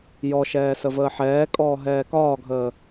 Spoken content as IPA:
jɔʃɛː səvəːħɛːkʼɔː ɦɛːkɒːɡʱəː

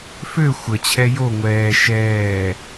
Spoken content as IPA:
fø xʷət͡ɕʰɛ jo ŋʷɛː ʃɛː

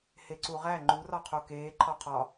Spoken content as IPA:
heǀuʁæ ŋ͡ǃurɒqʰo keː ǃʰɒqʰɒ

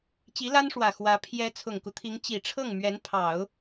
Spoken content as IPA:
t͡ɕi˧˥ la˥nʂwä˨˩ xwä˧˥ pʰjɛ˧˥ t͡sʰʊ˨˩ŋku˦t̪ʰi˧˥ŋ t͡ɕi˨˩ʈ͡ʂʰɤ˥˩ŋ mɥɛ˧˥npʰɑ˨˩˦ʊ̯

